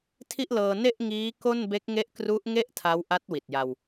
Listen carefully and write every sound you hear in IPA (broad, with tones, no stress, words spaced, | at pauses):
tʰi˥˩ʔlɤː˧ ne˥˩ʔŋiː˦˥ ko˥˩nbe˦˥k̚ ŋe˦˥ʔkru˦˥ʔ ŋe˥˩ʔ tʰa˦˥wʔa˦˥t̚wi˨˩t̚ ja˧w